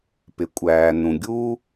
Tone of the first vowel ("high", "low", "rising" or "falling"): low